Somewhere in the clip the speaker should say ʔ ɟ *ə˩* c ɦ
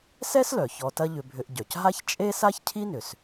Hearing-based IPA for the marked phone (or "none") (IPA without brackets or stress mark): œ˩